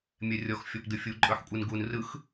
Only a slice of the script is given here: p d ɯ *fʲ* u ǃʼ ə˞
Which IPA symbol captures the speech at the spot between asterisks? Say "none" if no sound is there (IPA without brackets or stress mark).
fʲ